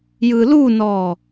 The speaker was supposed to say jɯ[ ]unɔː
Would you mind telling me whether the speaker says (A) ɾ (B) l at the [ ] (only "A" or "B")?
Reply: B